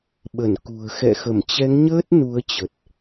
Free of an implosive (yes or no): no